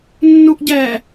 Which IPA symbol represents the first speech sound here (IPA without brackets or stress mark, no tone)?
nː